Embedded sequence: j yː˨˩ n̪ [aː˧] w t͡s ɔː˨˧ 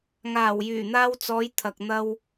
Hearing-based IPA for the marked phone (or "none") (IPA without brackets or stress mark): aː˧